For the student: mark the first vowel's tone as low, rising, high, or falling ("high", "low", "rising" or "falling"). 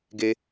high